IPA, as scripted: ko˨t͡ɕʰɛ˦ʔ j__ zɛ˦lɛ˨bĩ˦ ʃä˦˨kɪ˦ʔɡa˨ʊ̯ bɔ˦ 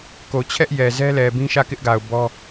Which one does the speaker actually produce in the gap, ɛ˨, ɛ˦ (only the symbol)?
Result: ɛ˨